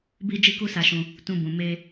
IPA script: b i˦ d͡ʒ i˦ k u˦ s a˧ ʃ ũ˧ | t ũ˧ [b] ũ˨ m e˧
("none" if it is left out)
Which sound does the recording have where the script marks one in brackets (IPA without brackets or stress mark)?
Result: b